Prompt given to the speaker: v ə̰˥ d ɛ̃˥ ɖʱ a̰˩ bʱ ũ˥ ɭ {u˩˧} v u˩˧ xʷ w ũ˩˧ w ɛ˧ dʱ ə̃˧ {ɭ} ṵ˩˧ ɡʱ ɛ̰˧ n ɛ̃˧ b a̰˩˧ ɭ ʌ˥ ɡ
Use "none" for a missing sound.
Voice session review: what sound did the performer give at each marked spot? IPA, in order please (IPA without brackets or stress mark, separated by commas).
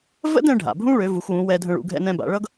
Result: ø˩˧, ɭ